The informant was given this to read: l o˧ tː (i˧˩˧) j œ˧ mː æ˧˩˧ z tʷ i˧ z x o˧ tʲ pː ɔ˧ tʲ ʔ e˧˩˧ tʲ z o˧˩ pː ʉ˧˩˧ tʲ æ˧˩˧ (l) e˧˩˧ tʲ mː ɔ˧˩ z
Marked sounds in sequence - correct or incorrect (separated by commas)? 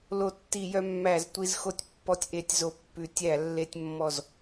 correct, incorrect